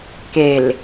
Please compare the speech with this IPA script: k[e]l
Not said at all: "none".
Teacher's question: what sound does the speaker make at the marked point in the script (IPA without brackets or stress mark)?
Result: e